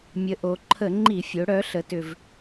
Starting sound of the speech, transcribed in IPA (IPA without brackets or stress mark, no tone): mʲ